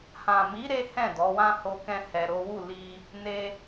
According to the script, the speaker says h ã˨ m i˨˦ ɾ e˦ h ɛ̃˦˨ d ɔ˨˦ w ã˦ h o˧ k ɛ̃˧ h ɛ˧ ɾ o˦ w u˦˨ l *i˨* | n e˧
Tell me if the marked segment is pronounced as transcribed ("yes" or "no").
no